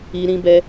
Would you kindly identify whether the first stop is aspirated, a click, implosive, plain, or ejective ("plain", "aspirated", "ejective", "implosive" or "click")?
plain